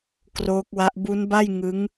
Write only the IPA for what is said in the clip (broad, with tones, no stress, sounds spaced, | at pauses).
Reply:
k r oː˦˥ k̚ w a˦˥ ʔ b u˦˥ n b a˥˩ j ŋ ɯ˦˥ ŋ